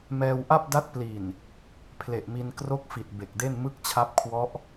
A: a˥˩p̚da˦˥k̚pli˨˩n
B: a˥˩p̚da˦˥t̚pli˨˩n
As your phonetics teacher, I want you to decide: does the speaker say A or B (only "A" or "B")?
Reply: B